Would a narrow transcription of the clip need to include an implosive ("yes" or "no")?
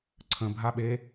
yes